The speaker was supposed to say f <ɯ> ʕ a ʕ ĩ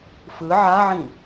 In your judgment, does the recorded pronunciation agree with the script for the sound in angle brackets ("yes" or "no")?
yes